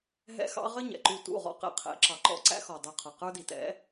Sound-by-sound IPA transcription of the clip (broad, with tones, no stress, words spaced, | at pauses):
ɦɛ̰˦xɑ̰˦ ʁə˦ ɲɛ̰˨ǃu˦˨ tṵ˦˨ʁɔ̰˦ qɛ̰˨qʰɛ̰˨˦ǁɑ˨ǃɔ̰˦ ǀæ̰˦ xɔ˨dˤu˨ qʰʌ˨qə˞˦di˨tɛ̰˨˦